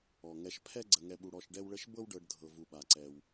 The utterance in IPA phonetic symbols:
ɔ˩ ŋ ɛ˨ ʃ pʰ ɛ˦ ɡ͡ǀ ə˨ ŋ ɛ˨ ɓ u˨ ɽ ɔ˨ ʃ ɖ ɛ˦ w ɭ ə˦ ʃ b ɤ˥ w ɖ ɤ˨ ɖ dʱ ɤ˩ v u˩ ɓ a˩ ǀ ɛ˩ w

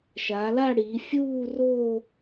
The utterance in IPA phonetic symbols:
ʃ aː˩˧ l a˥˧ ɽ iː˩˧ fʲ uː˥˧ r o˥˧

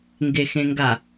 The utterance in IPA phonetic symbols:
ŋ ɡ e x ẽ ŋ ɡ a

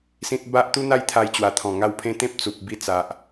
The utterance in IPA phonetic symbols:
s ĩ˦ t̚ b a˦ ʔ t̪ u˦ n̪ a˥˧ j t̪ʰ a˧ j t͡ɕ w a˨˩ t̪ʰ ɔ̃˨˩ ŋ a˧ w pʰ ẽ˧ t̪ ẽ˦ p̚ t͡s u˨ p̚ b i˧ t͡s a˨ ʔ

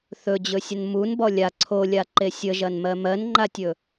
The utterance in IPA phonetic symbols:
θ ɵ d͡ʑ ɵ sʲ ə n m u n b ɔ lʲ a ǀʰ o lʲ a ǃ e sʲ ə ʒ ɐ n m ɜ m ɜ n ŋ͡ǃ a tʲ ɵ

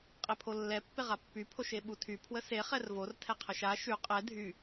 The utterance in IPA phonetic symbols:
qʼ e pʰ o lː ɛ pː e ʁ a pː y pʰ o ʃ e ɓ u tʰ y pʰ w ə s e χ ɛ r v o r tʰ ɛ qʰ ə ʃ a ʃ y qʼ ɛ dʱ y

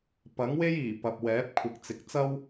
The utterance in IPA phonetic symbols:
p ɐ˨˥ ŋ w e˥ j iː˨˩ p ɐ˨ p̚ w ɛː˨˥ p̚ kʷʰ ɪ˨ k̚ t͡s ɪ˨ k̚ t͡s ɐ˥ w

